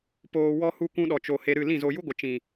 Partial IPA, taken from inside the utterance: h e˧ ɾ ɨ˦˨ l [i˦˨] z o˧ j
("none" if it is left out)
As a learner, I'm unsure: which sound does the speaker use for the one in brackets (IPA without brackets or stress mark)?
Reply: ĩ˦˨